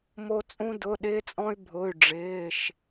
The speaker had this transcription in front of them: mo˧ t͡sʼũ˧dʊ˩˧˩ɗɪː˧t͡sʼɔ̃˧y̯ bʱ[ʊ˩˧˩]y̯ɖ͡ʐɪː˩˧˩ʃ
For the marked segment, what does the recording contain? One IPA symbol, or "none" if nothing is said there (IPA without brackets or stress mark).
ʊ˩˧˩